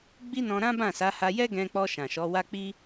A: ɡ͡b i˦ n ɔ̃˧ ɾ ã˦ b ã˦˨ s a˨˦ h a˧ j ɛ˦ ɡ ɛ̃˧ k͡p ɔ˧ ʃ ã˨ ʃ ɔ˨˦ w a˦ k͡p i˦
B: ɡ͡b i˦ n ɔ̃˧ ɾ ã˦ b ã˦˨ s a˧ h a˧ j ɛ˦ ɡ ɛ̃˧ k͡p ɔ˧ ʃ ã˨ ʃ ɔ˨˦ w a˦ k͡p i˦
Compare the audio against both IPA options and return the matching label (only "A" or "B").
A